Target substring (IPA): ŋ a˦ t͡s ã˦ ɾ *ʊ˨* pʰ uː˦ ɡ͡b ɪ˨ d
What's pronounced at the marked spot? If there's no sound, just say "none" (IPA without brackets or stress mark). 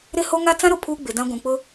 ʊ˨